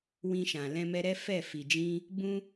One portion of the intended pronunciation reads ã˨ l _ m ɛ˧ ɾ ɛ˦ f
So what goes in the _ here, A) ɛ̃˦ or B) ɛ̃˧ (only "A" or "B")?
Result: B